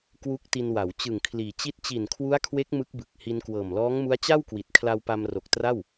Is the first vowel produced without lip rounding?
no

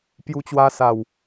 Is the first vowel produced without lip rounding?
no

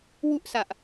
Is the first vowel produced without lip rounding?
no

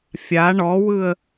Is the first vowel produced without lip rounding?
yes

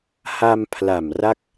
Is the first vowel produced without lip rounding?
yes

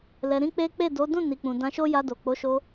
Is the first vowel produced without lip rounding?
yes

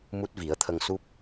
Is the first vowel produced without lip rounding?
no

